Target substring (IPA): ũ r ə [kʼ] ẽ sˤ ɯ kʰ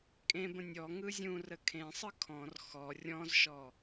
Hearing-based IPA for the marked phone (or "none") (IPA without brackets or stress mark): kʰ